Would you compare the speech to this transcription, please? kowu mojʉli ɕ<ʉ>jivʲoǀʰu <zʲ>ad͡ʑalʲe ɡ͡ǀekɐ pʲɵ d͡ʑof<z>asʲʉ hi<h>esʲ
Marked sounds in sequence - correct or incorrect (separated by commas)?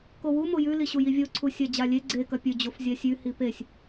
incorrect, incorrect, incorrect, incorrect